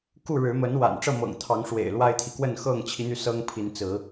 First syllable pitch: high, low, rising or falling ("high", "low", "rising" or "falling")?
falling